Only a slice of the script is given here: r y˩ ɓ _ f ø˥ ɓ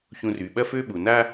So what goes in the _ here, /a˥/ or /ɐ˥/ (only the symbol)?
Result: ɐ˥